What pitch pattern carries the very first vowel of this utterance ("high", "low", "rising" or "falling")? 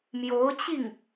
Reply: rising